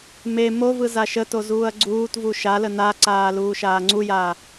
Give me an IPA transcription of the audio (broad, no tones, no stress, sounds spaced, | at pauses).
m e m o v ɯ z a ʃ ə t o z uː ɐ̯ ɡ͡ǀ uː t v u ʃ a l ə n a ǀ aː l uː ʃ aː ŋ͡ǀ u j aː